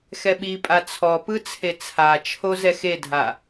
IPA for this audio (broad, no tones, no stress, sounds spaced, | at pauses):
x ɛ ɓ i pʼ a t͡sʰ ɔ p ɯ t͡sʰ e t͡sʰ a t͡ʃʰ o z ɛ x e dʱ a